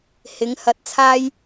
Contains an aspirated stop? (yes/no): yes